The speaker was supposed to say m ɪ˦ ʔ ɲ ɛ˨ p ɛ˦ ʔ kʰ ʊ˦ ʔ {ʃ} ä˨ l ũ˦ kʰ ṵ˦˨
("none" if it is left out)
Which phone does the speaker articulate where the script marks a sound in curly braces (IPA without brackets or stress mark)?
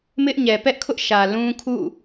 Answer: ʃ